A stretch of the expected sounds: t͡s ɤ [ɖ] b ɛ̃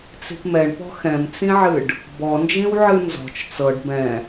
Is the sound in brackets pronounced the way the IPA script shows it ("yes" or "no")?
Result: yes